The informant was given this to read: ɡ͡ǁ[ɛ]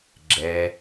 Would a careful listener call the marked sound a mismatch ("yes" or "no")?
no